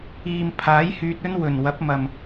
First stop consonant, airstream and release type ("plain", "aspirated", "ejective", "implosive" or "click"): aspirated